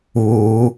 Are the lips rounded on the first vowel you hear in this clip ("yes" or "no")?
yes